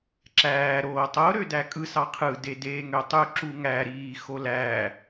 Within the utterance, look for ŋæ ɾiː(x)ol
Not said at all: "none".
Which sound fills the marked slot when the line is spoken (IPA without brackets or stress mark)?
x